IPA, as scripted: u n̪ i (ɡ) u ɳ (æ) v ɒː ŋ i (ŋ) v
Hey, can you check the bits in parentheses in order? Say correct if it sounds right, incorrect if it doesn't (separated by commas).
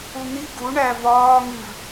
correct, correct, incorrect